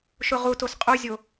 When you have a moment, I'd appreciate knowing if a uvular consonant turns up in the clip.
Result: yes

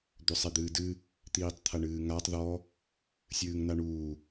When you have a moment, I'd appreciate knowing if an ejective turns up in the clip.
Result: no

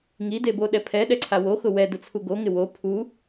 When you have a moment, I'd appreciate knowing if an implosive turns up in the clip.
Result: yes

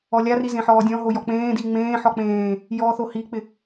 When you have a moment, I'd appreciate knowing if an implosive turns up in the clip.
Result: no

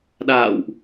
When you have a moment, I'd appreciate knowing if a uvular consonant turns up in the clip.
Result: no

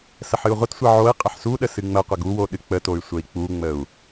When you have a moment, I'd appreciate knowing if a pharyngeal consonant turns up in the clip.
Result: yes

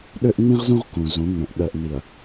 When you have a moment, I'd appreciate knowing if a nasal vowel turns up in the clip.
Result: yes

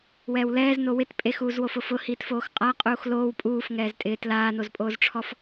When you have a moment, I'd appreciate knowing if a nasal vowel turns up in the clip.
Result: no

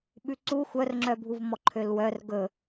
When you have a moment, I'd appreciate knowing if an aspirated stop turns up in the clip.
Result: yes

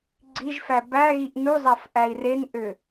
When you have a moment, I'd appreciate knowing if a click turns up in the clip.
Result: yes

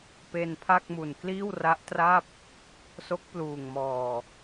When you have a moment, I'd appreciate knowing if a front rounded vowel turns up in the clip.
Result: no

